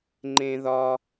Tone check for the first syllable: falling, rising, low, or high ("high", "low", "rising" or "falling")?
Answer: high